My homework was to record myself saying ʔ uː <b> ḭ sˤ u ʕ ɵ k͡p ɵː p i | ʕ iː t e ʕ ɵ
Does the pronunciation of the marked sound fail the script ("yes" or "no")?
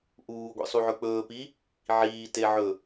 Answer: yes